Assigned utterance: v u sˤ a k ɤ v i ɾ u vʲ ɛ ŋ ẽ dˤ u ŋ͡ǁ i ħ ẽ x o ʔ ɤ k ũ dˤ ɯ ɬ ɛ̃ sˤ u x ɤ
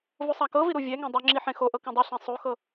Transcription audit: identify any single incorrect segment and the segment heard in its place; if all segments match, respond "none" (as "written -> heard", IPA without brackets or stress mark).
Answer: none